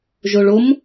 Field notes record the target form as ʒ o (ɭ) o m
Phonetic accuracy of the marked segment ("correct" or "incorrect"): correct